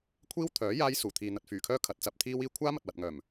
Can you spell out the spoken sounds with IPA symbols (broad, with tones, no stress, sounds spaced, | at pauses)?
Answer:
kʷʰ iː˥ w t̪ʰ œː˨˥ j aː˥ j s uː˨˩ t̪ʰ iː˨ n̪ ɐ˨ t̚ f yː˨˩ kʰ œː˥ kʰ ɐ˨˥ t̚ t͡s ɐ˨˥ p̚ t̪ʰ iː˥ w iː˥ kʷʰ aː˥ m ɐ˨ t̚ w ɐ˨ t̚ ŋ œː˨˩ m